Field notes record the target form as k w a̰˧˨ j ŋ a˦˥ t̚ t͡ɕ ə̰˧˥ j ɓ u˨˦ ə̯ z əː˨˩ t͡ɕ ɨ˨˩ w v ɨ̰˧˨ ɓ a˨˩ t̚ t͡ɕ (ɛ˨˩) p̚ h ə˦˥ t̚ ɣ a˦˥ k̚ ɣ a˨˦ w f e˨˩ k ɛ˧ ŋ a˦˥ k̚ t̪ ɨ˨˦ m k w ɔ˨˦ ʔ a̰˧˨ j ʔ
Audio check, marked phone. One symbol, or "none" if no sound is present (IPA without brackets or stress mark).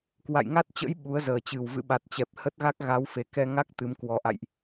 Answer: ɛ˨˩